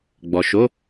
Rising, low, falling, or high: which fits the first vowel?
low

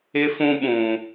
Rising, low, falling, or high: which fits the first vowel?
high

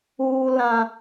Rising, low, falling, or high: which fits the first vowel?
high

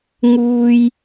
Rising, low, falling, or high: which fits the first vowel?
high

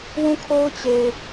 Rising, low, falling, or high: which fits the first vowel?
falling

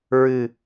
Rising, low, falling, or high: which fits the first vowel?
low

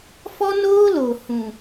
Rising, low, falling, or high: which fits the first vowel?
high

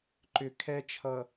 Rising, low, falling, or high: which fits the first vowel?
low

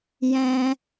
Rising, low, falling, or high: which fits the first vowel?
high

